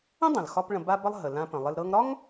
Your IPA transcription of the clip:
ə̃˥ dˤ ə̃˩ l x ɒ˧ p ɭ ə̃˧ b a˥ b ə˥ lˠ ɦ ə˩ l ã˧ p ə̃˩ lˠ ɪ˧ l ɾ ɤ˧ ŋ ɾ ɒ˥ ŋ

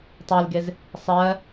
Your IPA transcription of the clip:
tˤ e l ɡ e z | sˤ ɜ

